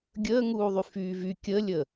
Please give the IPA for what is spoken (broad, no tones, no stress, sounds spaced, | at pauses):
ɡʲ əː ŋ uː ðˤ y f yː v y kʲ ə lʲ ə